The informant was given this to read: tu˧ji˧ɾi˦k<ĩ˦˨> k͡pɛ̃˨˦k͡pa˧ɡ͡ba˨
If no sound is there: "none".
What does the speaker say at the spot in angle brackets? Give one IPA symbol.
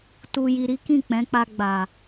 ĩ˦˨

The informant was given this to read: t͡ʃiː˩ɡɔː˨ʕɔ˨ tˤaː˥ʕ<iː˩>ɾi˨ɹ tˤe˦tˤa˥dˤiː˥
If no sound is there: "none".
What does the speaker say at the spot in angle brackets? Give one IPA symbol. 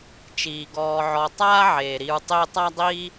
eː˩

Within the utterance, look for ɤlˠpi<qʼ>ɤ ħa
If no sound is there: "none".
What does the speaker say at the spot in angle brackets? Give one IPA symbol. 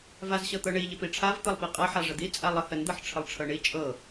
qʼ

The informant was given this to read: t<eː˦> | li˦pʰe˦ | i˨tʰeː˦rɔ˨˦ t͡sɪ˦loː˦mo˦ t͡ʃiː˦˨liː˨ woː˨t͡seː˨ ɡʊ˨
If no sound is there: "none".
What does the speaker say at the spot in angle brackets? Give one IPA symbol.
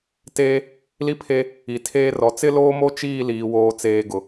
eː˦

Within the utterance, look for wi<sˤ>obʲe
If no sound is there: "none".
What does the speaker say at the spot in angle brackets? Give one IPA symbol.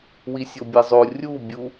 sʲ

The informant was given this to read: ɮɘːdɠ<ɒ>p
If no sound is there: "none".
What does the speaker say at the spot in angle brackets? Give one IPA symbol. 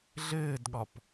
ɒ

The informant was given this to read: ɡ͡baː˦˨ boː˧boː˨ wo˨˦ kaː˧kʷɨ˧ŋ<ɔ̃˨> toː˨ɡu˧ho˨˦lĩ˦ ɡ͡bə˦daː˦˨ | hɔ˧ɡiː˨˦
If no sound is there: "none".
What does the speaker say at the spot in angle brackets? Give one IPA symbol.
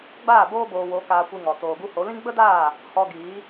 ɔ˨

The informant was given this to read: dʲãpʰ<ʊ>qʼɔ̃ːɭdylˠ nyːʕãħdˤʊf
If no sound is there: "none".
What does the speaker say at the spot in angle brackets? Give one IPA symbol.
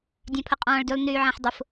ʊ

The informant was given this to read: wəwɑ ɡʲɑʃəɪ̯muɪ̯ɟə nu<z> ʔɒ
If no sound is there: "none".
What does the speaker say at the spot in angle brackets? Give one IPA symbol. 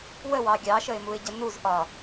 z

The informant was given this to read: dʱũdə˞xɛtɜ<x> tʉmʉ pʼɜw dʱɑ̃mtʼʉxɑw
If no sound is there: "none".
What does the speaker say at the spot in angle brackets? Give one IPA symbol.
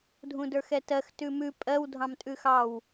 x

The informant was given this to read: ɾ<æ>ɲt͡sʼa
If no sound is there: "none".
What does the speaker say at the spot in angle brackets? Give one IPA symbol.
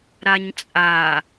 a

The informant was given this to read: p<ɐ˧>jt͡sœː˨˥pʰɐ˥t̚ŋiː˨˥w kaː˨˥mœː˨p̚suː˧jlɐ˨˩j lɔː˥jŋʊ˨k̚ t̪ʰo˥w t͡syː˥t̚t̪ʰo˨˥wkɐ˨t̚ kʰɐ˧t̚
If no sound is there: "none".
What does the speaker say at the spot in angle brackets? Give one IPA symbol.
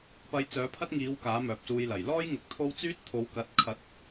ɐ˧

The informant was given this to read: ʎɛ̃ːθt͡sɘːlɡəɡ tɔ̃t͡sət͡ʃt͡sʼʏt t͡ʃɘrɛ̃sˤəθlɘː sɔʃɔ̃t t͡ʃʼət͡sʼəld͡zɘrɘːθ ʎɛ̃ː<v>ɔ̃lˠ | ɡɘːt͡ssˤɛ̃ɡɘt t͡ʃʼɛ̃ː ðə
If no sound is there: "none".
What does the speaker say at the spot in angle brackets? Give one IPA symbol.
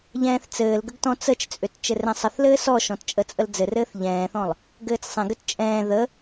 θ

